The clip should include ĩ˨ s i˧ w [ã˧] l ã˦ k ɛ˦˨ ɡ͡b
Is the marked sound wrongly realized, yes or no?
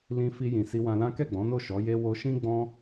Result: no